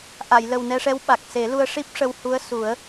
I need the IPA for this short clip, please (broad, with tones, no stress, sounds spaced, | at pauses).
ʔ a˨˩˨ j l ə˨˩ w n ɛ˧ ʂ ɛ˧˥ w ɓ a˨˩ k̚ s e˨˩˦ l u˧ ə̯ ʂ i˦˥ p̚ ʂ ə˧ w h u˧˥ ə̯ s u˨˩˦ ə̯